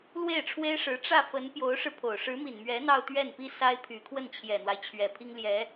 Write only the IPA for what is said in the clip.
lwe˥˩ɪ̯ʈ͡ʂʰwe˥ɪ̯ʂɻ̩˧˥ ʈ͡ʂä˥˩fə˧˥n pjo˧˥ʊ̯ʂɻ̩˧pʰo˨˩ʊ̯ ʂɻ̩˧˥mi˨˩nmɥɛ˧˥ n̪ɑ˥˧ʊ̯t̪ɥɛ˥˩npi˥ sa˥ɪ̯pʰy˨˩ kʰwə˥˩nt͡ɕʰjɛ˨˩n̪wa˦ɪ̯ t͡ɕʰɥɛ˨˩pʰi˥ŋljɛ˧˥

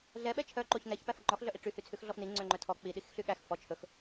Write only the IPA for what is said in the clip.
ɮɛɓɛ t͡ʃʰœǃoç nɛçpæf ŋ͡ǃɔxɮœʔi ʈ͡ʂyhyt͡sʰʉx ɮɔfni ŋ͡ǀøŋ͡ǃœtʰɔ k͡pi ɗixɬyɠæx fɔ t͡ʃʰɵx

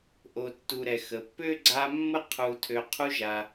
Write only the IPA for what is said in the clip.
ʔo˨tːu˨ɾɛ˩ xə˩pːø˥ ɡ͡ǀa˦mːə˥ qʰu˨tʰø˨ qʰu˦ʒa˩

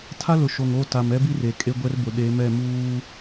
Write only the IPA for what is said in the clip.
tʰa˦lʊ˨ʃo˨ŋo˦˨ ta˨mɛ˦bi˦r e˨kʼe˦ ɡʷɛ˦rbʊ˨ ɗe˨˦mɛ˦˨ muː˦

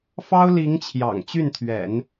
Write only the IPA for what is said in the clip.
fɑ˥ʊ̯li˧˥ŋ t͡ɕʰjɑ̰˨˩ŋt͡ɕy˥˩nt̪ʰɥɛ̰˨˩˦n

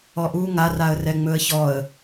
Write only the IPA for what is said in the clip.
ɔʔu ŋar aə̯rɛŋ͡mɵə̯çɔə̯

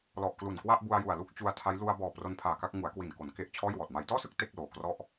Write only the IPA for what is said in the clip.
lɔ˨˩ʔklu˨˩nkwa˥˩ʔbu˧a̯ ju˨˩a̯lu˥˩k̚t͡ɕu˧a̯tʰa˦˥j lu˧a̯bɔː˨˩ pro˧npʰaː˨˩ka˥˩k̚ ŋu˩˦a̯kwi˨˩nko˩˦n ke˦˥ʔt͡ɕʰɔː˥˩jwɔː˨˩t̚ ma˩˦jtɔː˥˩sɯ˥˩k̚ te˥˩k̚loː˨˩krɔ˥˩ʔ

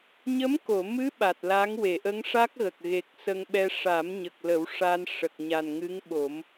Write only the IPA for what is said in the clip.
ɲə˧˥mko˨˩˨mɨ˧˥ ɓa˨˩t̚la˧˥ŋ we˨˩˨ʔə˧˥ŋʂa˦˥k̚ɣə˨˩k̚ ɣe˨˩k̚ sə˧ŋ ɓɛ˧ ʂa˨˩˦mɲə˨˩k̚lə˨˩˦w ʂa˧n ʂə˨˩k̚ɲa˨˩nŋɨ˧˥ŋɓo˨˩˦m

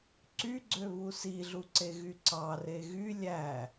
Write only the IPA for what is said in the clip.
ǀyɡ͡ǀøβu siɮuǀeɣy ǀɑre ɣy lʲæ

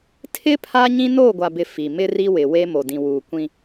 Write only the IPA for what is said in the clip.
tʰɪ˦ pʰaː˦ɲĩ˦ noː˦˨ɡʷa˨bɪ˨ fi˨ mɪ˦ ri˦wɪ˨we˦ mo˨dĩ˨ wuː˨kʷĩ˦

